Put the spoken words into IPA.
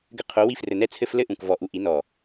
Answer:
ɡ ɘ˧ qʰ o˨˦ w i˧ f r ɘ˨ n ɛ˧ t͡sʰ ɘ˧ f l ɘ˦ ʔ ũ˨ k v ɔ˨ ʔ u˨ ʔ i˨˦ n ɔ˨

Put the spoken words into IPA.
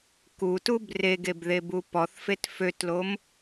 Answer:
k u t u b r e ɡ e b ð e b u p ɔ θ f e t f ø t l o m

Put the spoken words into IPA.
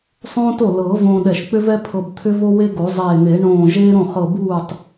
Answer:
sˤ õː˥ t o˥˩ l ɤː˨˩˦ v õː˧ ɗ ɛ˧˩ ʃ k͡p ʏ˥ v ɛ˥ pʰ ɤ˧ b t̪ʰ ʏ˥ v o˥ w e˥ ɡ o˨˩˦ zˤ eː˧˩ n̪ e˨˩˦ ɳ õː˧˩ ʒ eː˥ ɾ õ˥˩ χ ɤ˧˩ b uː˥˩ tˤ

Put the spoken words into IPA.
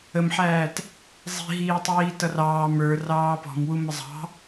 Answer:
ə m ħ æː t | zˤ i̤ ɦ iː tˤ iː t ʌ r ɑː m ə˞ r ɑː p ɔ̤ m w u m ə zˤ ɑ̤

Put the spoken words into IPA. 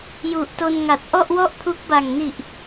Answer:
j u˨˩ ʔ t o˧ n ŋ a˨˩ t̚ ʔ ɔ˥˩ ʔ w ɔ˥˩ ʔ pʰ u˦˥ k̚ b a˨˩ ŋ n i˨˩ ʔ

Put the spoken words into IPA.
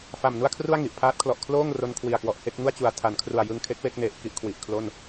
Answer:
f a˨˩ m n u˥˩ a̯ kʰ r u˥˩ a̯ ŋ i˨˩ ʔ pʰ aː˦˥ t̚ kʰ l ɔ˨˩ ʔ kʰ l oː˥˩ ŋ r o˧ n kʰ w i˨˩ a̯ k w ɔ˨˩ ʔ h e˥˩ k̚ ŋ u˥˩ a̯ t͡ɕ u˨˩ a̯ tʰ a˩˦ n kʰ r u˨˩ a̯ j ɯ˧ ŋ kʰ e˦˥ k̚ w e˥˩ k̚ n e˨˩ ʔ k i˥˩ ʔ kʰ w i˨˩ ʔ kʰ l o˥˩ n

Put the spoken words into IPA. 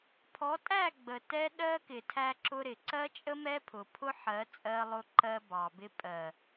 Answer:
pʰ ɔ˨˦ tʼ æ˦˨ ɡ͡b ə˨ t ɛ˦ ɗ ɜ˦ k ɪ˨ tʰ æ˦ ǁ ʊ˦ ɾ ɪ˨ ǀ ɜ˦ t͡ʃʼ ə˦ m ɛ˦ pʰ ʊ˨ pʰ ʊ˦ ħ ɜ˨˦ t͡sʼ ɜ˦ lˠ ʊ˦ ǃ ɜ˦ b ɑ˨ b ɪ˦ pʼ ɜ˨

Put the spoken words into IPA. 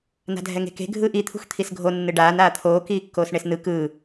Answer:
n a̤ dʱ ɛ ŋ e̤ k e̤ ɡʱ ɯː ʔ i t̪ʰ ṳ x t̪ʰ i s ɡʱ o nː ɯ ɖ aː n aː t̪ʰ oː k iː kː oː s ɳ e s n ɯ k ɯː

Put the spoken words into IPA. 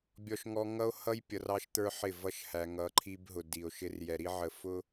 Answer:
bʲ ɔ˨ ʃ ŋ ɔ˨ ŋ ʌ˦ o̯ h ʌ˦ j pʲ ʌ˨ r ɑ˦ ʃ t̪ ə˞˦ ħ ɪ˦˨ v ʌ˦ ʃ h æ˨ ŋ ʌ˨˦ ǃʰ i˦ b ɦ ʊ˨ d i˨ o̯ ʃ ɪ˦ r j ɛ˨ ɾ i˦ ʕ ə˨ f ʊ˦

